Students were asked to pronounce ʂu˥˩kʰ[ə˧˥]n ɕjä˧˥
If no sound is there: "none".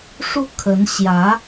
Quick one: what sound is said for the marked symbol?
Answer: ə˧˥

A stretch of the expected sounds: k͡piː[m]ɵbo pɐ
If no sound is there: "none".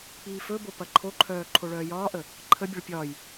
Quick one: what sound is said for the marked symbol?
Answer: f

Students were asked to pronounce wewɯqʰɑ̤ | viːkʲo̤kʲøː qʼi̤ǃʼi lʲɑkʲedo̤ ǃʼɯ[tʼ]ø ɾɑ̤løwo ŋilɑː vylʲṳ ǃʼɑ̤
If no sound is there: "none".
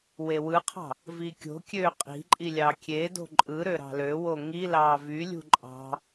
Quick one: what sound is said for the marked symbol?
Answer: ɾ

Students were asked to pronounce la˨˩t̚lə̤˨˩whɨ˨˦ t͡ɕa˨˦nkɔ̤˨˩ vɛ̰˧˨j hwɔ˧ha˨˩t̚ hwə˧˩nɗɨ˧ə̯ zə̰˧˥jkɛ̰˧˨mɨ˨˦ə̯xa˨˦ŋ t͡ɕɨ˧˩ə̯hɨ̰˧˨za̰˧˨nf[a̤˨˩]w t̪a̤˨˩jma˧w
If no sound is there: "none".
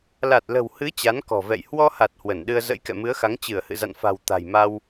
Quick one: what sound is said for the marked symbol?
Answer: a̤˨˩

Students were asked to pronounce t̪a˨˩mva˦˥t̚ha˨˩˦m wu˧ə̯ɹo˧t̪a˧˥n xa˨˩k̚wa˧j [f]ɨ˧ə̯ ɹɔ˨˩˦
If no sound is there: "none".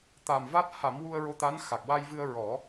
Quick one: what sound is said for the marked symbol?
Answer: v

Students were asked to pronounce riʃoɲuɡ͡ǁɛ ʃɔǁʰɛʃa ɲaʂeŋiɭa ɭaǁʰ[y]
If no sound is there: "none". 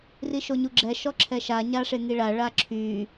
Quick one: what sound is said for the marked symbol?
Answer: y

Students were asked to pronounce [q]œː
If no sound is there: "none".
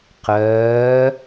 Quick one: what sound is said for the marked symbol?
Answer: q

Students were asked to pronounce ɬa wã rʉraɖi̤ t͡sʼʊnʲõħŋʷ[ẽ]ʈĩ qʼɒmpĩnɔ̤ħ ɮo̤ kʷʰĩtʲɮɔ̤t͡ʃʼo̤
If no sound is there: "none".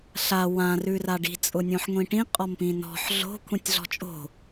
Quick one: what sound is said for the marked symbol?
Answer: ĩ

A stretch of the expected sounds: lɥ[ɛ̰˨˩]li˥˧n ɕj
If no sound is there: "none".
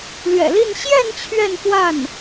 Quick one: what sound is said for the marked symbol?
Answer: ɛ̰˨˩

